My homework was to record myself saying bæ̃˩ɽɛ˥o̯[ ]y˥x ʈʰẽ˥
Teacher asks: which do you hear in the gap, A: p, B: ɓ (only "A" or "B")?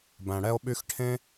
B